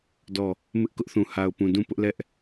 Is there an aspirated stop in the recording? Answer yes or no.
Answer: no